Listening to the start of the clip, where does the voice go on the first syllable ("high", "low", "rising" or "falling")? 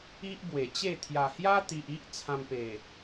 high